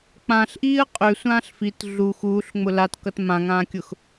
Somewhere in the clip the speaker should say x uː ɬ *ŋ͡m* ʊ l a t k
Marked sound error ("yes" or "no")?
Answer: no